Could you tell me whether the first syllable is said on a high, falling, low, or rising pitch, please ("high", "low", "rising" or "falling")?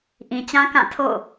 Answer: low